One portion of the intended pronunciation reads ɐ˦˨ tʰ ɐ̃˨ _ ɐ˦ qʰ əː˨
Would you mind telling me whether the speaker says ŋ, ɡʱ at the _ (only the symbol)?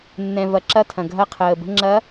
ɡʱ